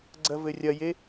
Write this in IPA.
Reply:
ɡ͡ǀɐvɘrʲɐje

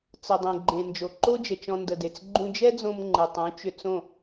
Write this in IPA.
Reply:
t͡sə˨dˤẽ˨ɡ͡ǃẽ˨ nd͡ʒo˨ǃo˦d͡ʒə˨ t͡ʃɔ̃˧ndə˨de˨t͡s ɡ͡ǃũ˧d͡ʒɛ˦d͡zõ˧m ŋ͡ǃɯ˨tˤũ˨˦t͡ʃʏ˧t͡sõ˦˨

